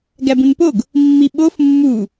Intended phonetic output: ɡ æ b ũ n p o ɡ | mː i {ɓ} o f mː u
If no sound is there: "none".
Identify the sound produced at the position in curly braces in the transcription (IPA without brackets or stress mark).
ɓ